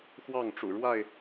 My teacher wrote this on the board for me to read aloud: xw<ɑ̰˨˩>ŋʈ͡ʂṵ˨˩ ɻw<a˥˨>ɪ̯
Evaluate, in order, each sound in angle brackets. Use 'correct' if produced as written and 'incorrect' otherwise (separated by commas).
incorrect, correct